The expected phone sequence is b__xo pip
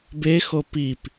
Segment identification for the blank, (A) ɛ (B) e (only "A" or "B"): B